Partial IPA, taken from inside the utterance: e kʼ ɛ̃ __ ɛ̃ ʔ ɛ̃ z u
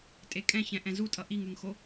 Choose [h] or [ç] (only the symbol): ç